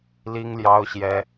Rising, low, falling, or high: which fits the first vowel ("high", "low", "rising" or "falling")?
high